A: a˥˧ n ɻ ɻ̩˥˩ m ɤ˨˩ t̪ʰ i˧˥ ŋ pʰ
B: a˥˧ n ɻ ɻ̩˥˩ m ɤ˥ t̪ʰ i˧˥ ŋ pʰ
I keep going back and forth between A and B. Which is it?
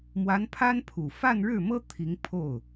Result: B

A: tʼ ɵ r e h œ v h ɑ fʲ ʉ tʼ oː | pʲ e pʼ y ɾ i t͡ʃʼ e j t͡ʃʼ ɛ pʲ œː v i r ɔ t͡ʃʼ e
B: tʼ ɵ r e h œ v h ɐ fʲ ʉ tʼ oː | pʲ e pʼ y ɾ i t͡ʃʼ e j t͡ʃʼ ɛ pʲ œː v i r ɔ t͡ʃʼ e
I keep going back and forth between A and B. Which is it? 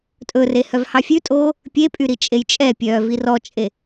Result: A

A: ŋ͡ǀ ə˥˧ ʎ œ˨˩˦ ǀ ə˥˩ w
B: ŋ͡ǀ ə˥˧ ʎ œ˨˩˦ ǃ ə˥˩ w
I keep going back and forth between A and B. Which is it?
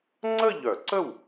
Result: A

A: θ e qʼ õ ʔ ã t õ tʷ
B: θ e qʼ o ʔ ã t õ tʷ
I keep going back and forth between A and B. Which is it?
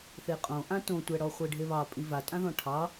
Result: A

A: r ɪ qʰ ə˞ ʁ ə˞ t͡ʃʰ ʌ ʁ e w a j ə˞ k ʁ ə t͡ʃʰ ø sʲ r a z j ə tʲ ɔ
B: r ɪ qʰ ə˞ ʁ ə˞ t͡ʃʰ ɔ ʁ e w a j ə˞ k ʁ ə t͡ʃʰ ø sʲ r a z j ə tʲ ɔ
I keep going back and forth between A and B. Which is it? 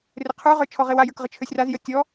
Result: B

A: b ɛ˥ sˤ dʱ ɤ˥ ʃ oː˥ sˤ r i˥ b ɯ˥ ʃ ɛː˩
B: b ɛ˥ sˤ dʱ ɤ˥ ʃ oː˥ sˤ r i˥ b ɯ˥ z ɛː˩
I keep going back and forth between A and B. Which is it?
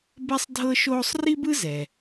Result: B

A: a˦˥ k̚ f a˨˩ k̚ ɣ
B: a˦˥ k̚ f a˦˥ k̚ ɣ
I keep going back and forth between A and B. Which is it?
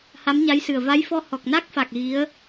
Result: A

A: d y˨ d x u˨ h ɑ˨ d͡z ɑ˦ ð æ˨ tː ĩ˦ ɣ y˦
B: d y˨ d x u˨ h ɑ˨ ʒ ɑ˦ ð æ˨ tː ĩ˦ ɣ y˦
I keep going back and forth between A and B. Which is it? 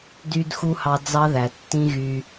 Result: A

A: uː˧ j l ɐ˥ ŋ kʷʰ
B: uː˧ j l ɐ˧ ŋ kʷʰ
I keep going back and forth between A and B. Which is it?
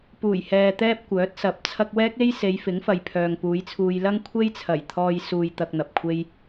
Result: A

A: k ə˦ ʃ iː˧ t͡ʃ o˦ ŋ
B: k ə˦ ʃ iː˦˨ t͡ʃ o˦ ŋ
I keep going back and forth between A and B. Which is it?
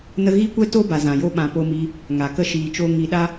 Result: A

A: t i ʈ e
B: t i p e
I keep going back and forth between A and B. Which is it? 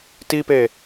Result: B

